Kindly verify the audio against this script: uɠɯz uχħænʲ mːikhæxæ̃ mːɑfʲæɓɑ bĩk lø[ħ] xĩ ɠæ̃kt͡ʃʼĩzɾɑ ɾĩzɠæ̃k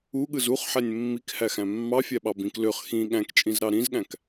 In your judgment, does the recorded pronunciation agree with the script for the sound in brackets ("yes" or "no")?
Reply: no